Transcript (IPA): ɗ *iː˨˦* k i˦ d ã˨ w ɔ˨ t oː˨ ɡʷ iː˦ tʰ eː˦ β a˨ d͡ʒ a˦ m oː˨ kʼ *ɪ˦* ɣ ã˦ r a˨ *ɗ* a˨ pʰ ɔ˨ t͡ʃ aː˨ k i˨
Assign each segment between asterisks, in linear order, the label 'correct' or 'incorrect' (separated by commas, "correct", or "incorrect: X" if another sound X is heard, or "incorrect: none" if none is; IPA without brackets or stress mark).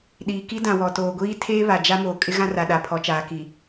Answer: incorrect: iː˨, correct, correct